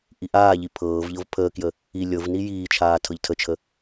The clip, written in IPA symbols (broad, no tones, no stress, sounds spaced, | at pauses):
ʔ i ʔ aː ʎ i pʰ ɤː v ʎ ɤ v pʰ əː k j ə | i lʲ ɤ v n i j iː t͡ʃʰ aː tʰ ɤ ʎ tʰ ə t͡ʃʰ ə